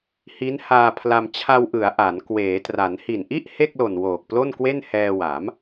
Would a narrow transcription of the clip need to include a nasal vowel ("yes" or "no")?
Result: no